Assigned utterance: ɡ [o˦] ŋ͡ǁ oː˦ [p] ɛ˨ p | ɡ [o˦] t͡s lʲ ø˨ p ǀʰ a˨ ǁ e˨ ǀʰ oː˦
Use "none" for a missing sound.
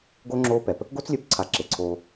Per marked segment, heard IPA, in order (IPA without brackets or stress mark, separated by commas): o˦, p, o˦